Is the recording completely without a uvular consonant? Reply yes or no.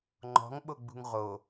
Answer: no